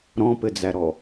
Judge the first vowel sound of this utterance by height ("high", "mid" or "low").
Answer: mid